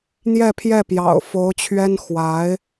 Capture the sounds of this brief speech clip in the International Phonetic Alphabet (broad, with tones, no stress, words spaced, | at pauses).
n̪jɛ˥˧pʰjɛ˥˩pjɑ̰˨˩ʊ̯ fo˧˥ʊ̯t͡ɕʰɥɛ˥n xwa˧˥ɪ̯